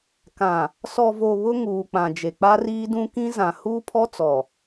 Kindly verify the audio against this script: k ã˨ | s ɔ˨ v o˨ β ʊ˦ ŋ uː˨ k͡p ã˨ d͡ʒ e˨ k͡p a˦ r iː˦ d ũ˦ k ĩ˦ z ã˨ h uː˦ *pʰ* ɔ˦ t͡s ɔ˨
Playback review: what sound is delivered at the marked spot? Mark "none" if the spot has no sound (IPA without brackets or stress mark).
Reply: pʰ